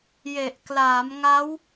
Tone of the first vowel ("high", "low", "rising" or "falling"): low